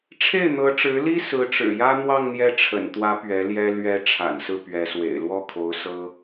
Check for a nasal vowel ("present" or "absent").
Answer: absent